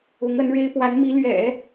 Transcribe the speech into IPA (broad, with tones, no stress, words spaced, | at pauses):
ʊ˧˥ŋə˧˥nɻe˥ɪ̯ pwa˧˥nmi˧˥lɥɛ̰˨˩˦